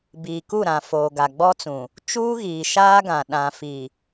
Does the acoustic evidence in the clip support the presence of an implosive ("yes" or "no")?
yes